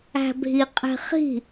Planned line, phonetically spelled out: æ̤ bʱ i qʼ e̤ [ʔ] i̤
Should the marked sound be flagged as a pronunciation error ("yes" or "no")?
yes